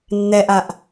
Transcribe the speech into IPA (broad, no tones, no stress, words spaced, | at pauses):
nːɛʔaʔ